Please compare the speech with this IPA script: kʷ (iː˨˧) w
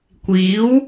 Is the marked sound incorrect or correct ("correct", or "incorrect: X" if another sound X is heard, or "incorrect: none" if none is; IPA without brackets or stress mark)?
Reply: incorrect: iː˨˥